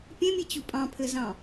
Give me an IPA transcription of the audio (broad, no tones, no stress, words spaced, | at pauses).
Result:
pʲẽmʲet͡ɕu pʼɑ̃pʰɘzɑ̃